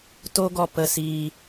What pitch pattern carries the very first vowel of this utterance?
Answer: high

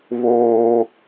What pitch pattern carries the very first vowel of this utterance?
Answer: high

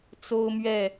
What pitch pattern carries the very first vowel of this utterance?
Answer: high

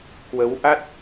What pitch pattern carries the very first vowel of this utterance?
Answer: rising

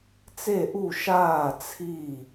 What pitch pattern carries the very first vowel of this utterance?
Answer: falling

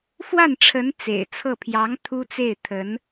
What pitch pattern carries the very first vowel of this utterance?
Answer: falling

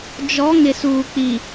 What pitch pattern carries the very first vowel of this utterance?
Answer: rising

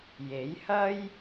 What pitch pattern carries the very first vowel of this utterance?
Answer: rising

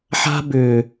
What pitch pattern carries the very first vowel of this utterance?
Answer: high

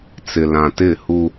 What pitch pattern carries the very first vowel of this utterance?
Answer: low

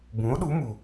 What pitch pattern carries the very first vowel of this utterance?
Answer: rising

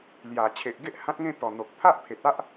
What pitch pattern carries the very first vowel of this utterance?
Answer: low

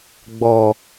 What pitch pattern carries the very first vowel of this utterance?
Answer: low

